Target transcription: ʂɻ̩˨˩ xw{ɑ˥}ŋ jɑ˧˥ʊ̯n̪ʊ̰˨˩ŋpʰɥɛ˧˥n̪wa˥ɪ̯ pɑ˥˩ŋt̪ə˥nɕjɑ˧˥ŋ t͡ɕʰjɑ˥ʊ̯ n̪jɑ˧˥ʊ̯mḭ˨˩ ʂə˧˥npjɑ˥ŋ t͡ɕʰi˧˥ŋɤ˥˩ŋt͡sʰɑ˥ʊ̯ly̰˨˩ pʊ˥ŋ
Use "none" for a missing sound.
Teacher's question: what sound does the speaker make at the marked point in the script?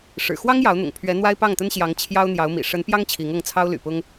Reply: ɑ˥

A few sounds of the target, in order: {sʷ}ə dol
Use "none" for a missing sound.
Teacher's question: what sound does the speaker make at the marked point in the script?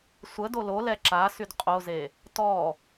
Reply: sʷ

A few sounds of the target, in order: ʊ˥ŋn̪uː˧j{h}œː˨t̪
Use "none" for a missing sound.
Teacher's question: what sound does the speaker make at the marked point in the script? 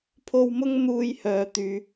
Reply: h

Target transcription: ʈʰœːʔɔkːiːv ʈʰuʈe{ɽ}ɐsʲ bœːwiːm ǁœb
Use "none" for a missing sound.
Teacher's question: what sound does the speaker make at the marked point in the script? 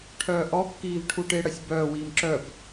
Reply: ɽ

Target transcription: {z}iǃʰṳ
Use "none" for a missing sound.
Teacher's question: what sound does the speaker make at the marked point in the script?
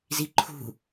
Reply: z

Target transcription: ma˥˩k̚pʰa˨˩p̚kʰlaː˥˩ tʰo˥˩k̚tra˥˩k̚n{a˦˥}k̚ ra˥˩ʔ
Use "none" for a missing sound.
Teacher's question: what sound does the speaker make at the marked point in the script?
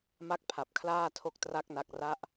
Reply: a˦˥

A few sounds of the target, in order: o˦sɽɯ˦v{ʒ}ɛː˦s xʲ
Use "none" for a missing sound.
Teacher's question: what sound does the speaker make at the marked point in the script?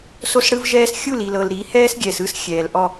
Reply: ʒ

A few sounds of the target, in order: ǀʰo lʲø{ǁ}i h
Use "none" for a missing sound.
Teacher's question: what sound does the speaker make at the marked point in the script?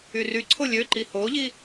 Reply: ǃ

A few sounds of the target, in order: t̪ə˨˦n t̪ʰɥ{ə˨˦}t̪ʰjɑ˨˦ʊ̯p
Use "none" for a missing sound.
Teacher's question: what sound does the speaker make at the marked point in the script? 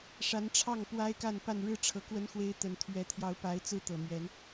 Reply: ɛ˨˦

